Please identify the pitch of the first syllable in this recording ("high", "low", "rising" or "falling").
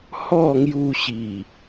falling